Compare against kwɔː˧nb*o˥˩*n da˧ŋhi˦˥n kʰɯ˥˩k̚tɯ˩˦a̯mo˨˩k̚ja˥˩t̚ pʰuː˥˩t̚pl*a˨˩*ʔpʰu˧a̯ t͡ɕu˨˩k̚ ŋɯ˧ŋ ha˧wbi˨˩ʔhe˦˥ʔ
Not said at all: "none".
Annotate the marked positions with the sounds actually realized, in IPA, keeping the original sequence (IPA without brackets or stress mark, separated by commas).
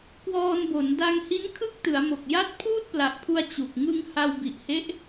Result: o˩˦, a˨˩